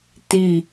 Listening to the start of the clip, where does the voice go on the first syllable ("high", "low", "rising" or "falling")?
falling